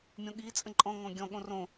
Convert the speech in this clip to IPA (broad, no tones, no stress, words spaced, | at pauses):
mʲõɠi t͡sʼə̃ǃʼɔ̃ ŋɔ̃ɡʲɔ̃ ɠõrõ